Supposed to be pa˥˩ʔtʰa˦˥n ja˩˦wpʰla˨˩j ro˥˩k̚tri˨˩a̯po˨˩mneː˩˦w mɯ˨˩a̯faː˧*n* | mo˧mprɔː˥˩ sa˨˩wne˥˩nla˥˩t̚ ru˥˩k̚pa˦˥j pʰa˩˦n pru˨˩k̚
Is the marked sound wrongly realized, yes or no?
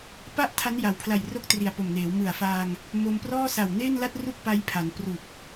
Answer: yes